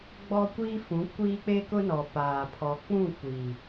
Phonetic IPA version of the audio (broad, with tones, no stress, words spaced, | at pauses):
ɡ͡bɔ˦kʷi˦fũ˨˦ kʷiː˦k͡pe˦kʊ˦nɔ˨ paː˨pʰɔ˨k͡pũ˦˨ kʷi˨